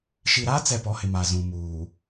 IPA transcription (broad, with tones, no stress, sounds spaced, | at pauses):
ʃ i˨ ɾ a˦ t͡s ɛ˨ p ɔ˨˦ h ɪ˨ m a˨ z ũ˨ m uː˨